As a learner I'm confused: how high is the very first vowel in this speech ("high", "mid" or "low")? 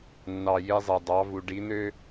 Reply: low